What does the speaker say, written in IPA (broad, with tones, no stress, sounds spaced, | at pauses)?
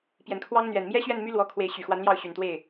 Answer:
p j ɛ˨˩ n kʰ w ɑ˥ ŋ n̪ ɥ ɛ˨˩ n m j ɛ˥ ɕ ɥ ɛ˥˩ n m y˥ l w ɔ˧˥ kʰ w e˧˥ ɪ̯ ɕ y˨˩ x w a˧˥ n l j ɑ˥˩ ʊ̯ ɕ y˨˩ n t̪ w e˥˩ ɪ̯